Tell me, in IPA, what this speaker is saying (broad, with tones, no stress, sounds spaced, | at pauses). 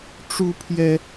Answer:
ʈ͡ʂ u˥ pʰ j ɛ˥